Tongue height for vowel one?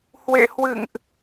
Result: mid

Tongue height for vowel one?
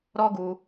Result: mid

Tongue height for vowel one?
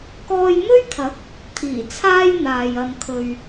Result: mid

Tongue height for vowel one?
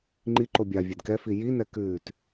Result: high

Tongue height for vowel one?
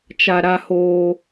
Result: low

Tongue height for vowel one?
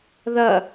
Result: low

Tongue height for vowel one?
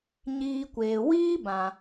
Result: high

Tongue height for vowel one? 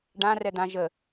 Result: low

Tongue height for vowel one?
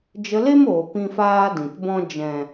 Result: mid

